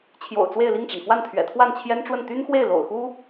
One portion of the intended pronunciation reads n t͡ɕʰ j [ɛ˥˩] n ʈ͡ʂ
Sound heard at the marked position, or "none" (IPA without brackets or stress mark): ɛ˥